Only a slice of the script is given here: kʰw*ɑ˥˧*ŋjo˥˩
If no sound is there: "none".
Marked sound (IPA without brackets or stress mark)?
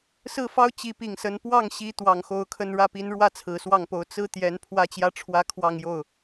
ɑ˥˧